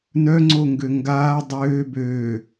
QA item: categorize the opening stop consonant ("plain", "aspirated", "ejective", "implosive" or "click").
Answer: click